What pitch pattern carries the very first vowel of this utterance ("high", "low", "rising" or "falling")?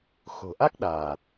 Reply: low